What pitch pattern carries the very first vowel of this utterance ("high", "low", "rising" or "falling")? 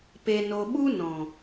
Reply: low